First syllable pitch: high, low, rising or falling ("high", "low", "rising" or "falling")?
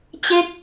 falling